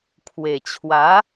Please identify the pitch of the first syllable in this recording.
low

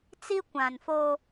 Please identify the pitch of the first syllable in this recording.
high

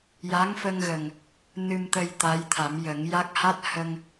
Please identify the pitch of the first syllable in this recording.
rising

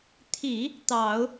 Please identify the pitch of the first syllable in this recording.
low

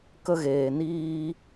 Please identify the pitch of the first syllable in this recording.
high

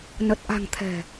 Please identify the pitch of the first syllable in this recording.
low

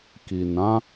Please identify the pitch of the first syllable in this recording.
low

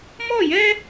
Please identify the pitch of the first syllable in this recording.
falling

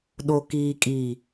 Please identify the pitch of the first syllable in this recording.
low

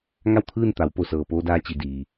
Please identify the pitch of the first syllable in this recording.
falling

